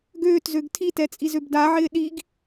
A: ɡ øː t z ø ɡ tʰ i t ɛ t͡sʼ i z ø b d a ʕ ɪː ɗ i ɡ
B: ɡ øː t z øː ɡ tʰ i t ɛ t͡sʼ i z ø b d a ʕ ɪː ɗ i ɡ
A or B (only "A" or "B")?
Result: A